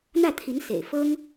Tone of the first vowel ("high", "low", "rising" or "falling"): falling